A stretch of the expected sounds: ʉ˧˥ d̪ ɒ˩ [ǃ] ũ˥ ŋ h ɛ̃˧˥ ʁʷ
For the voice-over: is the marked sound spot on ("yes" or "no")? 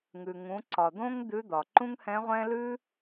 yes